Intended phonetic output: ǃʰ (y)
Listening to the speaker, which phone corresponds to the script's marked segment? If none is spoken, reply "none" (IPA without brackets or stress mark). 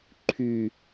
y